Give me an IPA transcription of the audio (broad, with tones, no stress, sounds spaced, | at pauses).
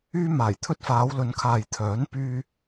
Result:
yː˧ m aː˨˩ j t̪ʰ ɵ˧ t̚ f aː˨˧ w l ɵ˨˧ n kʰ aː˨ j t̪ʰ œː˨˥ n p yː˧